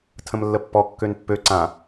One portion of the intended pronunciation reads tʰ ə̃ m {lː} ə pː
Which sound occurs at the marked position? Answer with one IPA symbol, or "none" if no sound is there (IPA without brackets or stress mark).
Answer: lː